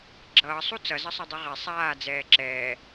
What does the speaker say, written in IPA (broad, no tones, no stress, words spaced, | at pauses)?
ɡ͡ǁʌːsˤu t͡sʌzʌsˤʌdˤi ʁɛ sˤaːd͡zɛː ǁɛː